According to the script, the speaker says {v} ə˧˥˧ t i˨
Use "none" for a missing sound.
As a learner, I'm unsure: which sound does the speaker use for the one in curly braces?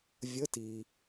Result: vʲ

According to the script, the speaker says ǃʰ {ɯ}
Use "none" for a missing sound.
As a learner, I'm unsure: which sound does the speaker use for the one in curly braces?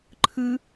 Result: ɯ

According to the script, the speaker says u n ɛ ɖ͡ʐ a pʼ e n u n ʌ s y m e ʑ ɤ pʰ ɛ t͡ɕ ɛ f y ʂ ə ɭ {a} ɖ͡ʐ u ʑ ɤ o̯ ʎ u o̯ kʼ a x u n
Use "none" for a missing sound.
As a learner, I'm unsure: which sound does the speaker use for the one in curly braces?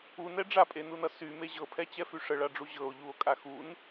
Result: a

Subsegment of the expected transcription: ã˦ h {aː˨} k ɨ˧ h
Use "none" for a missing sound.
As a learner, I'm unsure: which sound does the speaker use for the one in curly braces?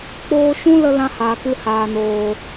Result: aː˨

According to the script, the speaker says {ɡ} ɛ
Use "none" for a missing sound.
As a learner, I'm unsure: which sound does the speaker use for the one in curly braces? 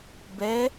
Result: b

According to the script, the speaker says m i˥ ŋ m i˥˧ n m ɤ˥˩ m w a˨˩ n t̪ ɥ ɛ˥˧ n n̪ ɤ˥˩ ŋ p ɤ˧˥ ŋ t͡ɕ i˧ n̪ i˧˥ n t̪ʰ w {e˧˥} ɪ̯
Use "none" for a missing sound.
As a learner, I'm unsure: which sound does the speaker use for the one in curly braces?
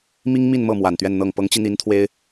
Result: e˥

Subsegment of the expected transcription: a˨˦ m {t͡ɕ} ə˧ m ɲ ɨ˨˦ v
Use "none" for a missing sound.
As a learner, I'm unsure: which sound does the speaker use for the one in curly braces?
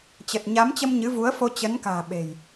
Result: t͡ɕ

